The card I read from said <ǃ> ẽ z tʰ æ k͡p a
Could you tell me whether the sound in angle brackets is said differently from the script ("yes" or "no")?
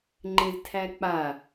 yes